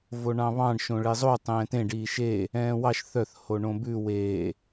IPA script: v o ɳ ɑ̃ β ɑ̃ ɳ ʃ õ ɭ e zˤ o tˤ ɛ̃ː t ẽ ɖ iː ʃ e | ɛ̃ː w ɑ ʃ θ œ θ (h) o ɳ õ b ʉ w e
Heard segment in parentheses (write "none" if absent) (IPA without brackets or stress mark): h